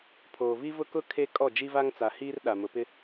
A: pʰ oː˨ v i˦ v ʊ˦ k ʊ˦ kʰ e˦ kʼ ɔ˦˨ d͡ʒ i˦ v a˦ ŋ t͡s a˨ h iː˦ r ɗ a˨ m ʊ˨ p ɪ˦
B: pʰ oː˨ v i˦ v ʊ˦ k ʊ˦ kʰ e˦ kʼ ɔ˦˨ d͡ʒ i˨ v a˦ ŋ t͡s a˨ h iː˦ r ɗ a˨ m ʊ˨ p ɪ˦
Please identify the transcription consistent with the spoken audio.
A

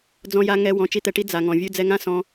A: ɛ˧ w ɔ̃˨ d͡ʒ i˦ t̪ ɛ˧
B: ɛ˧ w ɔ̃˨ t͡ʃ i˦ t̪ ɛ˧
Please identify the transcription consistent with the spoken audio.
B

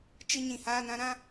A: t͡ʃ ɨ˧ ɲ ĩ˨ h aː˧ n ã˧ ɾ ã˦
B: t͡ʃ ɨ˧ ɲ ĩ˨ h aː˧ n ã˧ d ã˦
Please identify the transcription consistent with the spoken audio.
A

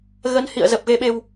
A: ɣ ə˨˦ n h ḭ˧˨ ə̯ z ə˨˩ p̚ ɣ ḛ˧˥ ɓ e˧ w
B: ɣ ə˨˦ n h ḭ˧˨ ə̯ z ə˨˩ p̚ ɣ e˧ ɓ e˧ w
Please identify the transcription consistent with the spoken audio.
B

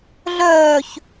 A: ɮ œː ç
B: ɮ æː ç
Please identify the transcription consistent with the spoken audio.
A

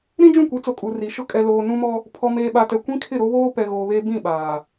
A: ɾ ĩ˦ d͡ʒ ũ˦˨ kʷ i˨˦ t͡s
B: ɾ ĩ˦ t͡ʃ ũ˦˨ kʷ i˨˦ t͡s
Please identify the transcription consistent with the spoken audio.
A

